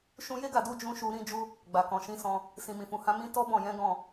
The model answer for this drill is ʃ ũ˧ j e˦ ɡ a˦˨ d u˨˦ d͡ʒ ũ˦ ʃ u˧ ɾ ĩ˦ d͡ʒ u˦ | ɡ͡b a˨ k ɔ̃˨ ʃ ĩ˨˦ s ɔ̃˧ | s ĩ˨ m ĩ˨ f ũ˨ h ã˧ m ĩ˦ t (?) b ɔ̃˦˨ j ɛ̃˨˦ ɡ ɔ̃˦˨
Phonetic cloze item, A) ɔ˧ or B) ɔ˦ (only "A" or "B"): B